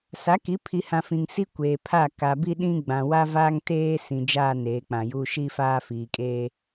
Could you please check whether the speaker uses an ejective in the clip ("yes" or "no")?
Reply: yes